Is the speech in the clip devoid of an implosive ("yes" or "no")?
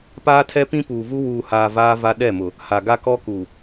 no